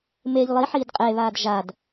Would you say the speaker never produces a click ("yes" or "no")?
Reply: yes